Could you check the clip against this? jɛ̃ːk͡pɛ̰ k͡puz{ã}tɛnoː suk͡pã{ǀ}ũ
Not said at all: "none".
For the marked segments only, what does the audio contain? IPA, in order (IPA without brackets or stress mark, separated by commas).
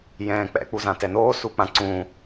ã, ǀ